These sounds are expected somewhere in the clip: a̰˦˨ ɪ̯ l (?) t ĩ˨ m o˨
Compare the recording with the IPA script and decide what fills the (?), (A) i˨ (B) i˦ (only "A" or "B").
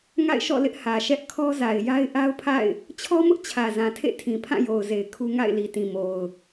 A